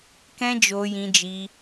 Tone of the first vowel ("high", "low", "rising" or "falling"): high